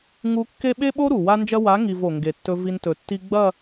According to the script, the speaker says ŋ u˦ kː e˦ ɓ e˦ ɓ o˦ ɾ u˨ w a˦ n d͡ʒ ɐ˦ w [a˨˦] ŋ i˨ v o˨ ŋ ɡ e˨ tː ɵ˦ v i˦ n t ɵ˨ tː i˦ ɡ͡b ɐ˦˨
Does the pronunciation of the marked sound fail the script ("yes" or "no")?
no